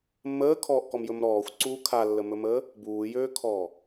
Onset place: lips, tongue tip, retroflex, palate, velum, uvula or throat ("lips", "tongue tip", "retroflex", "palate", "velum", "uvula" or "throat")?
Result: lips